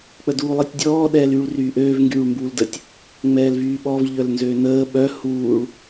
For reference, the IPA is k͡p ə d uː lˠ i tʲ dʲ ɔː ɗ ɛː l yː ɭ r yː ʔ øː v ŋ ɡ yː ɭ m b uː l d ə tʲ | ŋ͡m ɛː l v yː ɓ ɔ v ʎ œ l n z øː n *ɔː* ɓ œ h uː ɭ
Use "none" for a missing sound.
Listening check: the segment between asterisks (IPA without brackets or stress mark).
əː